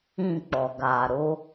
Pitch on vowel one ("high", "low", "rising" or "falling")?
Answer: falling